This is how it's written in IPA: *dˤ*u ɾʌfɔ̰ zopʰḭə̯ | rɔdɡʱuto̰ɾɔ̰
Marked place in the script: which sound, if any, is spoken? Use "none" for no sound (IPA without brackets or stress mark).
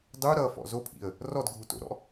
dˤ